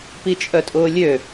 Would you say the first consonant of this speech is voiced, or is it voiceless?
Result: voiceless